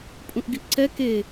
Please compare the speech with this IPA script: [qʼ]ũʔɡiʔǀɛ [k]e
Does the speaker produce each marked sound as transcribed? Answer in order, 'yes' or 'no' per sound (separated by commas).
no, yes